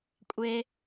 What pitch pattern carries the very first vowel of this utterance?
low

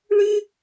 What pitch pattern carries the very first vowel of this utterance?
high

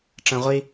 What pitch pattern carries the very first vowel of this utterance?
low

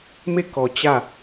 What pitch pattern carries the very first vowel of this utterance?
falling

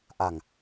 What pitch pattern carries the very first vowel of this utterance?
low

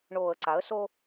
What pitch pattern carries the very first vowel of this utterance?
low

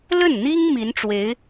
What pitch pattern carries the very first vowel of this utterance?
falling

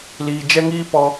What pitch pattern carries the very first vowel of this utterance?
low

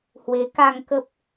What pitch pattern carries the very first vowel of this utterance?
rising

